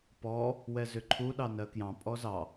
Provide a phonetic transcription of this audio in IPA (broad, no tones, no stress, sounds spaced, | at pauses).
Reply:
p ɔ | w ɛ z ʏ ǃʰ u ɗ ɑ n ɜ k j ɑ̃ pʼ ɔ z ɑ